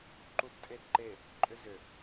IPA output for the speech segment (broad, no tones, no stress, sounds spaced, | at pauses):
ǃ u d tʼ e d ǃ e | ǃʼ ʏ z ʏ